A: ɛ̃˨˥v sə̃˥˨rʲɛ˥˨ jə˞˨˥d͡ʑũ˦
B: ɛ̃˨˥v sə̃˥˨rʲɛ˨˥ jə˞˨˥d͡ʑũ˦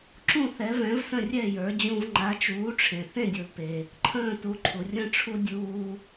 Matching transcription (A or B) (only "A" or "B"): A